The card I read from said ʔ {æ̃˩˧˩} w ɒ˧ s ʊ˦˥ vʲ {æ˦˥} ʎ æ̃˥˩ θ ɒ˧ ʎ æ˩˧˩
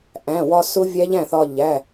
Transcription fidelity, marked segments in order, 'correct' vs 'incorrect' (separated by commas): correct, correct